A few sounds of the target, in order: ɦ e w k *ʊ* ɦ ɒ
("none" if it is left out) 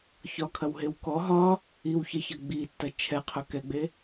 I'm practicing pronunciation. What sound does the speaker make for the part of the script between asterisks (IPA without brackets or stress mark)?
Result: ɔ